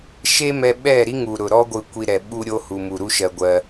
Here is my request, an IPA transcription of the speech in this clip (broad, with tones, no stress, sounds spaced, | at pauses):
ʃ e˦ m ɛ˧ ɓ ɛ˦˨ ɾ i˦ ŋ u˨ ɾ ʊ˨ ɾ ɔ˦ ɡʷ ɯ˧ kʷ i˧ ɾ ɛ˨ ɓ u˧ ɾʲ o˧ h u˨ m u˨ ɾ u˦ ʃ ɜ˧ ɡʷ ɜ˧